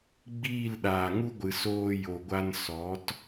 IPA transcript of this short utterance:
ɡ͡b iː˦˨ l ɗ aː˨ ŋ u˦ ɡʷ ɨ˨ s oː˧ j o˨ ɡʷ a˧ n s ɔ˨˦ t

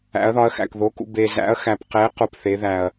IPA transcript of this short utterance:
æ̰˨˦ ɐ̯ ð ɒ˨˦ ɐ̯ x æ̰˨ k ð o˨˦ k ṵ˨ b e˨ z æ̰˨˦ ɐ̯ x æ˨ p q e˨˦ q u˨ p θ e˨˦ ð æ˨ ɐ̯

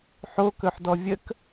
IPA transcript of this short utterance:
ħ o k ɵ ħ d ɔ vʲ ə k

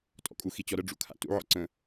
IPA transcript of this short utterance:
tʼ ɔ̰ kʼ u x i t͡ɕ ɔ ɾ ə ɖ͡ʐ ṵ kʰ a̰ t ṵ ʕ ɔ̰ ǀ ə̃

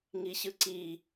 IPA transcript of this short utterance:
ŋ i ɕ ɯ ǀ i

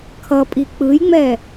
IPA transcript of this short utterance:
kʰ ʌ pʼ i k͡p ɯ j ŋ͡m ɛ

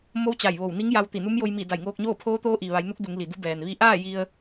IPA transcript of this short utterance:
m o˧˥ w t͡ɕ a˧˩ j ʋ o˧˩ w n i˧˥ ŋ j a˧ w t̪ i˧˩ n u˧˥ m j o˧ j m i˧˩ d a˧˩ j ŋ oː˧ k̚ ɲ oː˥˨ pʰ oː˧˥ t̪ oː˧˥ ʔ i˩ ʋ a˩˧ j n u˧˥ k̚ d u˩˧ ŋ l i˩ d u˧˥ b ɛː˩ n ʋ i˧ ʔ aː˥˨ j i˧ ə̯

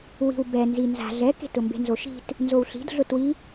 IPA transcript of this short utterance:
w i̤ w b ɛ n z i n z a̤ ɮ ɛ k e̤ t ʊ m b e̤ n z o ʃ i̤ t | n z o w ɬ i̤ d ɮ ʊ t w i

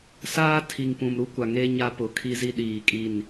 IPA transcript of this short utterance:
s aː˦ tʰ i˨ ŋ p ũ˨ m ɾ u˦ kʷ a˨ ŋ e˦ ɲ a˦ p ʊ˨ kʰ i˦ z i˦ ɗ iː˨ kʼ i˦˨ n

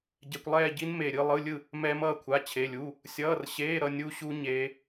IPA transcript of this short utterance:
ɟ ɛ˧˥˧ kʷ lˠ ɛː˥˧ ɟ i˦˥ n m e˥˧ ɾʲ ɯ˥˧ lˠ ɯ˧˥˧ lʲ ɯ˥˧ | m ɛː˦˥ m ʌː˥˧ kʷʰ a˧˥˧ t͡ɕʰ e˧˥˧ lʲ u˧˥˧ | sʲ ʌː˧˥˧ r ɕ eː˧˥˧ ɾ ʌ˥˧ nʲ u˦˥ ɕ u˦˥ ɲ eː˦˥

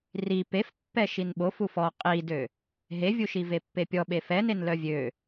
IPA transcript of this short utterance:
r i p e f pː ɛ ʃ i n ɓ o f u f ɔ qʼ i d ø | ɦ e vʲ u ʃ i v e pː e pʲ ɔ ɓ e f ɛ n e n l œ vʲ ø

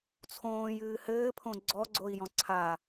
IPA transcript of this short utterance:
t͡sʰ õː j ɨː h ɘː pʰ õ ɡ͡ǀ ɔ ɡ͡ǀ o i̯ j ɔ̃ ǀʰ a

